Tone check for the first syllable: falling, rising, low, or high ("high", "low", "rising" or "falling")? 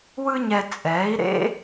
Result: high